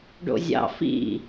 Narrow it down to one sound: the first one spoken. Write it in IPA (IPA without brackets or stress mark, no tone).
ɖ